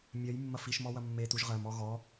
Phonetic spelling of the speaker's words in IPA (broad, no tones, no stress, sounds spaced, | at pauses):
mʲ ɜ j mː ɐ f i ʃ m ɔ w ɐ mː e t u ʒ ʁ ɜ m ɔ ɣ ɔ